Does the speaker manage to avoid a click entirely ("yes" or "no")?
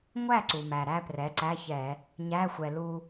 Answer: no